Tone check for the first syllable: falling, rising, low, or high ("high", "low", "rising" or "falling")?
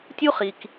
high